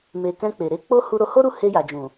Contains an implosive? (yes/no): no